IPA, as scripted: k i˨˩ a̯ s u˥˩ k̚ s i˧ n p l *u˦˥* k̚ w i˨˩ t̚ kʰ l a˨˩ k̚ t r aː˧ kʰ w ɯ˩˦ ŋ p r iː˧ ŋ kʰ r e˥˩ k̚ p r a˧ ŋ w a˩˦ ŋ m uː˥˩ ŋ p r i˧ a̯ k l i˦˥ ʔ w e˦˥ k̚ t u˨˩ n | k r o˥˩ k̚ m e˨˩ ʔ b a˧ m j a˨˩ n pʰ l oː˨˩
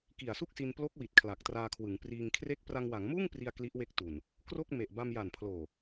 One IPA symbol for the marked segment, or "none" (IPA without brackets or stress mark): o˦˥